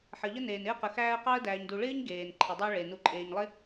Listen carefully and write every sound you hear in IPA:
ħə˩ʎə˦neː˩n ɪ˦ə̯qə˩ xæː˦ə̯qɑ˥ə̯dæː˨ɲ du˨ɭɪː˥ɲ ɡeː˩n ǃʰɪ˩dˤɑ˦ɭe˩ nu˨ǃʼeː˨ɲlˠɪ˥

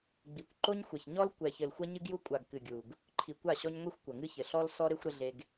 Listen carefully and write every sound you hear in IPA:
ɡ͡bi˨kʷ ǃo˦ɲxʷɐ˨ç ɲɔ˦l kʷɛ˨çɘ˨l xʷɐ˦ɲɨ˦ɡju˦ kʷʼa˨ɡ kɨ˨ɡʲu˨ɡ | ǃʰi˨kʷa˦˨ɕɔ˦ɲ ŋʷi˦xʷkʷɐ˨ŋɨ˦çɘ˨ ɬɔ˦l sɔ˦ɾe˦xʷɾɘ˦ ɮe˦ɡ

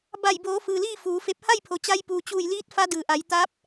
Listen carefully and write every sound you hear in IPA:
ba˧˩jboː˩˧ fɯː˩liː˥˨ fuː˩˧fe˧˥p̚ ha˥˨jpʰo˩t͡ɕa˧j puː˩t͡ɕuː˧˩jliː˧˥t̚ fa˧˥dɯː˩ʔa˩˧j t̪a˧˥p̚

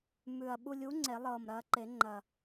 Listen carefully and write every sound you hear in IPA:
mʉ˨˩ɐ̯ ɓu˧lʲu˨˥ ŋ͡ǀe˨˩˦lˠɤː˨˩mɾɐː˧ǃe˨˩˦ ŋ͡ǃɐ˨˩

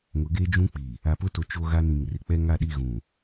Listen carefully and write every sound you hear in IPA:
ŋʊ˨˦ɡeː˦d͡ʒũ˦k͡pi˨ | a˨pʊ˦to˨ t͡ʃo˦ɣa˦nĩ˨ŋ rɪ˨k͡pɛ˦ŋa˦˨ɗi˦˨ ɣũ˨

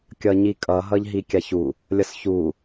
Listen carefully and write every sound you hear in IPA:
kʲʌɲikʼʌ ɦʌʎɦikʲaçu | lʲʌsçu

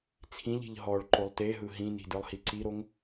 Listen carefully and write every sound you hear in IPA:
t͡sʰĩʎi̤ʎ ɦɔɭ ǃolˠteɦɯ ɦĩni̤ dɯlˠhiǀiɾoŋ

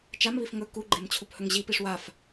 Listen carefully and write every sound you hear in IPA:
t͡ʃamβif ŋɵ kuɡ͡ǃemt͡ɕʰuphɵŋ ʑipiʂ waf

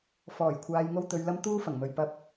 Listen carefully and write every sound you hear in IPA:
fɔː˨˩jkʷʰaː˨jŋo˧w t̪ɵ˨ɥlɐ˧m t̪uː˥fɐ˨˩ŋmɵ˨ɥ pɐ˨p̚

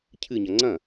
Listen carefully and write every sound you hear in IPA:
cʰɨɲɐ ŋ͡ǀɐ̃

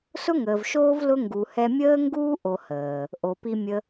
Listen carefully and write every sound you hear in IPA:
sʊ˦ŋəː˨vʃoː˦v lʊ˦ ŋɡu˨hɛ˧mʲəː˦ŋɡuː˦ ʔo˧həː˨ | ʔo˨pi˧ mʲə˦

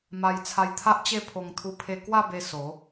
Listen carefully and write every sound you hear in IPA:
ma˧j t͡sʰa˧jt̪ʰa˦ʔt͡ɕe˥˧ pʰo˧ŋ t̪ʰu˧pʰe˧kwa˥˧be˧ so˨˦

